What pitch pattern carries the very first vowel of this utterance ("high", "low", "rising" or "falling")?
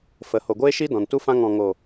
rising